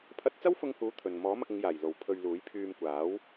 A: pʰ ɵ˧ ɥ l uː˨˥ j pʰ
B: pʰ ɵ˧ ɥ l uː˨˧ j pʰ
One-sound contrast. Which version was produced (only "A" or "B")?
A